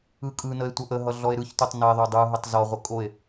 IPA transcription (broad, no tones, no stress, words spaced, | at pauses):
ɯkʼɯnəe̯ tʷʌʔəɦʌ ɮɔe̯ɾɯçtotˤ nəe̯ðˤo dˤɯɦətˤ zɔʁʷə kʼoe̯